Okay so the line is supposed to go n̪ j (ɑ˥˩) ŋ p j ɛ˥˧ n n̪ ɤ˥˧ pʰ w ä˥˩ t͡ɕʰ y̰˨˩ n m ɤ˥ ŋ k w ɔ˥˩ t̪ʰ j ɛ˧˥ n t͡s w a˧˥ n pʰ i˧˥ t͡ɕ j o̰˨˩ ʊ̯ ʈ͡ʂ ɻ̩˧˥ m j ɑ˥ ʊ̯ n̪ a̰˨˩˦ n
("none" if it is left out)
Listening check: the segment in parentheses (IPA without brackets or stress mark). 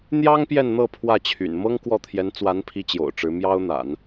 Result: ɑ˥